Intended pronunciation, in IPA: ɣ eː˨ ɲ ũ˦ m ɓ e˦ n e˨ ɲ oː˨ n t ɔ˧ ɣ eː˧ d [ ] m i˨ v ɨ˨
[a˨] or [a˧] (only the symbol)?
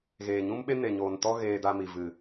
a˧